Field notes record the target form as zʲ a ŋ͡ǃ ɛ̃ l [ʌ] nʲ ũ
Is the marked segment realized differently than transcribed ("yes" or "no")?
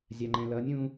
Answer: no